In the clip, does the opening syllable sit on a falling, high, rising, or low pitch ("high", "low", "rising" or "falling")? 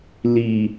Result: low